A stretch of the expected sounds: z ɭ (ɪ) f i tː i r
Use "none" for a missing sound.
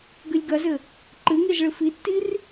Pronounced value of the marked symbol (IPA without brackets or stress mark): ɨ